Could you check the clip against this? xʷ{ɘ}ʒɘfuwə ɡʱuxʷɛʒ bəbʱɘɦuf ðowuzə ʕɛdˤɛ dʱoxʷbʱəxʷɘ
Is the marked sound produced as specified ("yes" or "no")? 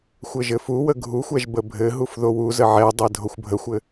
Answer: yes